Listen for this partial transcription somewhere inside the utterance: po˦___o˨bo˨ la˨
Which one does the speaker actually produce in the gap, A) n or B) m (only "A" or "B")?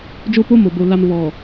B